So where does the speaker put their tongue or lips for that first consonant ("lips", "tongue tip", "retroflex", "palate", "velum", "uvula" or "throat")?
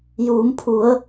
palate